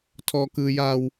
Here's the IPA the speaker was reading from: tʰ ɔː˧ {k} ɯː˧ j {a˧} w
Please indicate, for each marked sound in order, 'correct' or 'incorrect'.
correct, correct

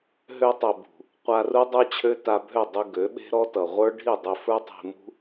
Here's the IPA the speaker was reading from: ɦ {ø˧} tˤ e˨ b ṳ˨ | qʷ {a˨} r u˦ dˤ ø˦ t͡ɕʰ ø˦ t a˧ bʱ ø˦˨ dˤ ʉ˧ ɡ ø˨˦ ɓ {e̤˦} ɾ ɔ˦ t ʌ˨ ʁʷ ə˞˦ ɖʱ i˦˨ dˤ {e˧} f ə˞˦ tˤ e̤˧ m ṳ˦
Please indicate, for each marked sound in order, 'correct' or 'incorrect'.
correct, incorrect: a˧, correct, correct

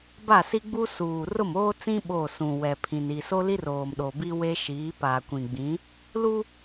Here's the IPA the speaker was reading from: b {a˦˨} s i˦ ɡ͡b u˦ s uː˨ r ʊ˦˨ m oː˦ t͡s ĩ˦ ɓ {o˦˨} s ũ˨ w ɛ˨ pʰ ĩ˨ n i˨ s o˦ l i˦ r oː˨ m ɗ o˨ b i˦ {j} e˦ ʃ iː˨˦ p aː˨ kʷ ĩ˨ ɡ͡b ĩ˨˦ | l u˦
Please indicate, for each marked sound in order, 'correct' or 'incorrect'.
correct, correct, incorrect: w

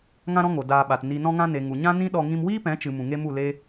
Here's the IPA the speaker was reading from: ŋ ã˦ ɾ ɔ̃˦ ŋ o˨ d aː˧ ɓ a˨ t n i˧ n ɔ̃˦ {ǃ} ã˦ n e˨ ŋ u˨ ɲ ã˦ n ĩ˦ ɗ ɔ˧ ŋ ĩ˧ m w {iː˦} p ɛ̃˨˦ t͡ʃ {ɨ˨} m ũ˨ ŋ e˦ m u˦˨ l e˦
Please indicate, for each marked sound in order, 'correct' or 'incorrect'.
incorrect: ŋ, correct, correct

